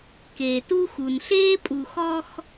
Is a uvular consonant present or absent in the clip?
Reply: absent